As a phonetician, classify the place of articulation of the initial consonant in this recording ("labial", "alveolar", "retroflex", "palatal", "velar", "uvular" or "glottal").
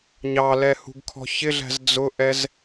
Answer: palatal